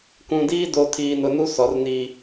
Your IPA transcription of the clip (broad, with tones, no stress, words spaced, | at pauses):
kũ˨diː˦do˨ tʰiː˨nʊ˨nu˦ sɔ˨˦rni˦